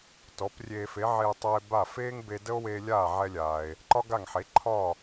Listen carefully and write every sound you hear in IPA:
t ɔ˩˥ p rʲ eː˧ f e˩˥ ʕ e˧ tˤ ɛ˧ e̯ b a˥˩ f eː˥ ŋ b e˧ d ə˥ o̯ w e˧ lʲ aː˥˩ ʕ ɛ˧ lʲ aː˩ e̯ | ǃ ɒ˥ ɡ a˥˩ ŋ ħ e˩˥ ǃʰ ɒː˥˩

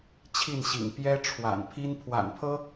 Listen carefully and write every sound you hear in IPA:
t͡ɕʰ i˥˩ n ɕ ḭ˨˩ ŋ p j ɛ˥ ʈ͡ʂʰ w a̰˨˩ n pʰ i˥ n pʰ w a̰˨˩ n pʰ ɤ˥

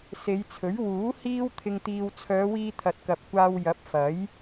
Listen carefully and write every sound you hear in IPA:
s e˨˧ j t͡sʰ ɵ˨˥ ɥ w uː˨˥ h iː˥ w t̪ʰ ɪ˧ ŋ t̪ iː˧ w t͡sʰ œː˨˧ w iː˧ t̪ʰ ɐ˨ t̚ k ɐ˨ p̚ kʷ aː˧ w j ɐ˨˥ p̚ f ɐ˨˥ j

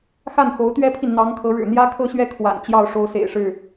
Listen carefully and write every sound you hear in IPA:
x a˥˩ n x o˧˥ ʊ̯ t̪ ɥ ɛ˥ pʰ i˨ n n̪ ɑ˧˥ ŋ kʰ ɤ˧˥ ɻ ɻ̩˨˩ n̪ j ä˥ kʰ ɤ˥˧ ɕ ɥ ɛ˥˩ kʰ w a̰˨˩ n t͡ɕ j ɑ˥˩ ʊ̯ ʂ o˥ ʊ̯ s ḛ˨˩ ɪ̯ ʂ ɻ̩˥˩

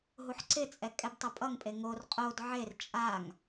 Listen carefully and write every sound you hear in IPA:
ɦ u ħ ǀ ɪ t͡sʼ ɛ kʼ ɛ b tˤ ʌ pʼ ʌ ŋ pʼ e ŋ o r qʼ o d ʕ e r t͡ʃʼ a ŋ

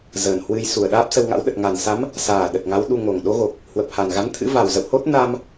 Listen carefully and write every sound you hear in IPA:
z əː˨˩ n h w ɨ˧ j s u˨˩ ə̯ ɗ aː˦˥ p̚ s ə˧ w ŋ a̰˧˥ w ɗ ə˨˩ t̚ ŋ a˨˩ n s a˨˦ m | s aː˨˩ ɗ ə˨˩ t̚ ŋ a˨˦ w ɗ u˧ ŋ o˨˩ ŋ ɗ o˨˦ ɣ o˨˩ k̚ | h w ə˨˩ p̚ h a˨˩ n ɣ a˨˦ n t̪ʰ ɨ̰˧˥ v a˨˩ w z ə̰˧˨ w h o˦˥ t̚ n a˧ m

